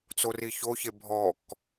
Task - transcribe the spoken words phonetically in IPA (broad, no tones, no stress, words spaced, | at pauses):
t͡soriçoçe bʱɔk